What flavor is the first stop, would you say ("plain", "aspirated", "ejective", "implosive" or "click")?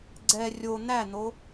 click